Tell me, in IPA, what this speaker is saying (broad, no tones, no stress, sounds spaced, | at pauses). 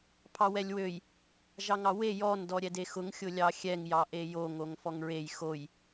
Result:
pʰ ɑ w ɛ lʲ w ø j | ʒ ɑ ŋ ɑ w e j ɔ n d ɔ ɾʲ ɛ d e x ʊ ŋ xʲ ʊ lʲ ɑ xʲ ɛ ŋ j ɑ ʔ e j o ŋ o ŋ f ɔ ŋ ɹ e j x o j